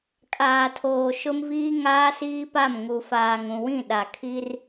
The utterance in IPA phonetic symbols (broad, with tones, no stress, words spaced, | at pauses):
kʼaː˨tʰoː˨ ʃʊ˦mviː˦ ŋaː˦siː˦pa˦˨m ŋu˨faː˨ŋũ˨wĩ˦˨ ɗa˨kʰi˦r